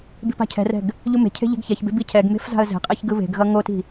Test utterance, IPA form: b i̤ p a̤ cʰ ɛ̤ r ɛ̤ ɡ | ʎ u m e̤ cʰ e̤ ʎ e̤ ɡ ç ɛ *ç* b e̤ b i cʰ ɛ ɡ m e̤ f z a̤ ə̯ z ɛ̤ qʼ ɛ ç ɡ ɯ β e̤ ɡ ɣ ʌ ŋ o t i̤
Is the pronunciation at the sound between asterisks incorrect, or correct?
correct